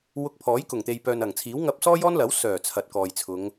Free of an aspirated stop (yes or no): no